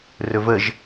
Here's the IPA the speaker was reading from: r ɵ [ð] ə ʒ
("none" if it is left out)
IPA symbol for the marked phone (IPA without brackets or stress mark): v